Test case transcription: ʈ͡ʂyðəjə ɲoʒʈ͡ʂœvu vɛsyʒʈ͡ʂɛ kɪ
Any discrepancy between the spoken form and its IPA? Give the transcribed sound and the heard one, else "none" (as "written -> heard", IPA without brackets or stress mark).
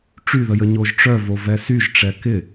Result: u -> o